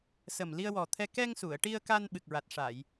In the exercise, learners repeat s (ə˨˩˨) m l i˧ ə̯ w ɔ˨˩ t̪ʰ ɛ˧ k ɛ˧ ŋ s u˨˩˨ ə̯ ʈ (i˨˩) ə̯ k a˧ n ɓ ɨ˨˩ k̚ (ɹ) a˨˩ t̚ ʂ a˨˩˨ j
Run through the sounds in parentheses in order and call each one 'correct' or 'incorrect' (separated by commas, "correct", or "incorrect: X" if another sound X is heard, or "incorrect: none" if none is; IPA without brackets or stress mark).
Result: incorrect: ə˨˩, incorrect: i˧, correct